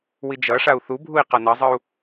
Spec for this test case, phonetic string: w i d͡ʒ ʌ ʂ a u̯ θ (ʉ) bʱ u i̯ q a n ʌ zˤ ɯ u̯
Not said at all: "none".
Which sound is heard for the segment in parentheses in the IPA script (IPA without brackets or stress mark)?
u